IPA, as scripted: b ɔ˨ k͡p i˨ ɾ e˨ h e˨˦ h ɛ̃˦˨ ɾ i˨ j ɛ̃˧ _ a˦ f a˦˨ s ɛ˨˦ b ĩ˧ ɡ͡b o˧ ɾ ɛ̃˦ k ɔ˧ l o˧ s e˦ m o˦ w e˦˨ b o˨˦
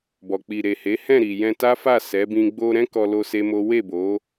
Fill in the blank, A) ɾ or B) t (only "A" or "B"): B